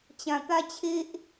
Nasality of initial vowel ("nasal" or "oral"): nasal